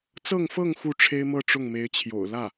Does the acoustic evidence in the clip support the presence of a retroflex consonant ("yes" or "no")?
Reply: yes